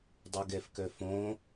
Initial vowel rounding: rounded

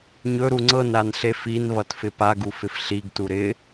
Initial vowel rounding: rounded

